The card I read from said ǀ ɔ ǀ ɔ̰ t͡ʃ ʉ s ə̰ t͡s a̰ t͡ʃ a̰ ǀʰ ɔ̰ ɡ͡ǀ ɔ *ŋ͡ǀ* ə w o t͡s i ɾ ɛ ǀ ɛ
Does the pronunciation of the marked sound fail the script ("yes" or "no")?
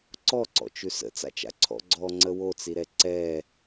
no